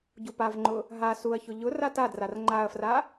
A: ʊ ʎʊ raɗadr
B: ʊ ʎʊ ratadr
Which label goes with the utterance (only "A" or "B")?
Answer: B